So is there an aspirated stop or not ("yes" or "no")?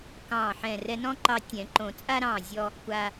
no